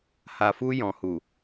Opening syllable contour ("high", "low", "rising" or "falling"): low